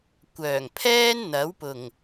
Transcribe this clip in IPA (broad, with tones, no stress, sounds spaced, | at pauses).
kʷ œː˨˩ ŋ pʰ ɛː˥ n n̪ ɐ˨˥ w p ʊ˨˩ ŋ